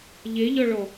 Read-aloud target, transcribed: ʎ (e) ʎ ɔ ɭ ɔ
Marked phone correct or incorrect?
correct